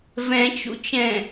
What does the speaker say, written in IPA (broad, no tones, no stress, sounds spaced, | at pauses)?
v ɛ̃ t͡ʃ ṵ t͡ʃ ɛ̃